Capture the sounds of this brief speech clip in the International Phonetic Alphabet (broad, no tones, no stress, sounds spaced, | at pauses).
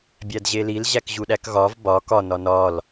bʲ æ d ʑ e l i l ʑ æ k ʑ u ɗ æ k ɣ ɒ v b ɒ k ɒ n ɒ n ɒ l